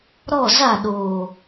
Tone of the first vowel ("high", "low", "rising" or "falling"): falling